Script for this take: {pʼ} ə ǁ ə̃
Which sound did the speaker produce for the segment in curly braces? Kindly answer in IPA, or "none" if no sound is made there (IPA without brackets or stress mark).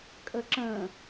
kʼ